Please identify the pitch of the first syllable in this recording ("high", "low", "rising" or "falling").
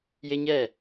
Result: high